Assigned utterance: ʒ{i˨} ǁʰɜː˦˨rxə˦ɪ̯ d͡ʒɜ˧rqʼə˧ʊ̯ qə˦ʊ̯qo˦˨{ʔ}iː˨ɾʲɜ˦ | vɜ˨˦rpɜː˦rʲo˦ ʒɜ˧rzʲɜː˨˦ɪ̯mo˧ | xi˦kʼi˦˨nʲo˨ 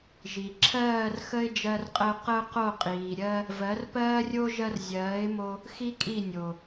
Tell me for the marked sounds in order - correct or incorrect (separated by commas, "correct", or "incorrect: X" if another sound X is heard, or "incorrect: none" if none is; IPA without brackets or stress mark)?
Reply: correct, incorrect: qʼ